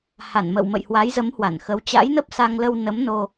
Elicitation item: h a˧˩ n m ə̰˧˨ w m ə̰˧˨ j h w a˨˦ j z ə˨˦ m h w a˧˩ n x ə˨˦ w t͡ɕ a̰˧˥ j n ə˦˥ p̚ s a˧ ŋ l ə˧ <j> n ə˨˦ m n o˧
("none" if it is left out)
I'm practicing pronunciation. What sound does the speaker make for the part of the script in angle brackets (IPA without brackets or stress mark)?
w